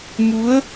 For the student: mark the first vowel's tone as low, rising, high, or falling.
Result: rising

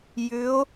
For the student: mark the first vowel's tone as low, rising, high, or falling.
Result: rising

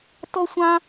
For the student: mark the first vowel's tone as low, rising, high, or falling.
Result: high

